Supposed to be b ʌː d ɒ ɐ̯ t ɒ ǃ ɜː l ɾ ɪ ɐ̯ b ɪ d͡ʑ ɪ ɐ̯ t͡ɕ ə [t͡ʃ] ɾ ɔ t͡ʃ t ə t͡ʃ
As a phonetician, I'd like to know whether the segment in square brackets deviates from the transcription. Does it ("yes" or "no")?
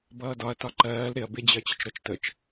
no